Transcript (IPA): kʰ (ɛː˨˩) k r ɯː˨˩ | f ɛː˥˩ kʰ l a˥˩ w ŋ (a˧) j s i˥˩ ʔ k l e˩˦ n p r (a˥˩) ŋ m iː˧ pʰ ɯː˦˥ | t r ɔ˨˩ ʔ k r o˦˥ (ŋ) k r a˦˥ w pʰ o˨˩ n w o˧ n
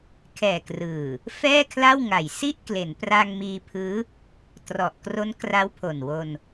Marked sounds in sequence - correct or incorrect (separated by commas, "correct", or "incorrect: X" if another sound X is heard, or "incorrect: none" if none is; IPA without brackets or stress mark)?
correct, incorrect: a˨˩, incorrect: a˧, incorrect: n